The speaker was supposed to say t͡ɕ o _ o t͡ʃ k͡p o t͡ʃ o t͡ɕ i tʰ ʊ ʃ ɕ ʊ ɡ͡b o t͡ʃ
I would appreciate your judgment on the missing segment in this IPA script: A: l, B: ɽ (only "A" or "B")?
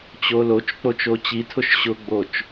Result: A